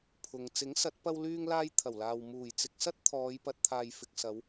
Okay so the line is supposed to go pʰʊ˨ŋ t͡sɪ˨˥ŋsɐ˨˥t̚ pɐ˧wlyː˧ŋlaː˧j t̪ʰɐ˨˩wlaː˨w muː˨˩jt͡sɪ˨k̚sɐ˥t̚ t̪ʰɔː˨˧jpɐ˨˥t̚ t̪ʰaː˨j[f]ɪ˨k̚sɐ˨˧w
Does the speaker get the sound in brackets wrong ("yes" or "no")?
no